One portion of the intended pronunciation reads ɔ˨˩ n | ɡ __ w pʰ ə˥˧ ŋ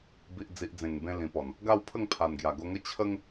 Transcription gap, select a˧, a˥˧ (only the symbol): a˥˧